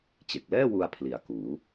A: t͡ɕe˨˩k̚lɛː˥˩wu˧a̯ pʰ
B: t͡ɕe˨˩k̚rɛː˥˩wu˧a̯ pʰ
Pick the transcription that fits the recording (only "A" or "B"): A